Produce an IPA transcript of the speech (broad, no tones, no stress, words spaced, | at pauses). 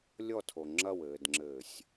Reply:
lʲɔtʰo ŋ͡ǁɐwɘːdŋ͡ǁɘːsʲ